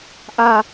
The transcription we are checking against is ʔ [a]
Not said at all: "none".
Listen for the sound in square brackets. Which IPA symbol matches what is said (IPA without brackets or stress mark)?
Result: a